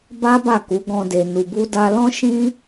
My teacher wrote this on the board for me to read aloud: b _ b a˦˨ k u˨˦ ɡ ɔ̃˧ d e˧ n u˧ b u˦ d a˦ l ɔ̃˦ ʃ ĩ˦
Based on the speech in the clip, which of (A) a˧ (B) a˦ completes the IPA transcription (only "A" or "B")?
B